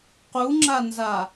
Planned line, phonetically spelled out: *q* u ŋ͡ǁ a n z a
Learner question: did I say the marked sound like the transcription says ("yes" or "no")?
yes